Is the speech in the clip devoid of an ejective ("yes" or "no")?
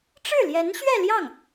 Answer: yes